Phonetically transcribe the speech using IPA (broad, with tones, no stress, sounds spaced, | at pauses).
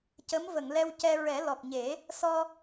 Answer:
c ə˧˥ m v ə˨˩˨ ŋ l ɛ˧ w c ɛ˧ ɹ ɛ˨˩˦ l ɔ˨˩ k̚ ɲ e˨˩˦ | s ɔ˧